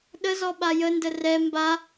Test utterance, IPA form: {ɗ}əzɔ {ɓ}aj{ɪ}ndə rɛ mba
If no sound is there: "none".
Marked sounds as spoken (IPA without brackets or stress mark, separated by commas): ɗ, ɓ, ə